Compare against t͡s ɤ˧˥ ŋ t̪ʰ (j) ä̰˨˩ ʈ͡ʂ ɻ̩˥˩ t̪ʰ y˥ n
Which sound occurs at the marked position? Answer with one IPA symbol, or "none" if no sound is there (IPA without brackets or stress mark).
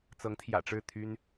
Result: j